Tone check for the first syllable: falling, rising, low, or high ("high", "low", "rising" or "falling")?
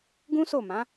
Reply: high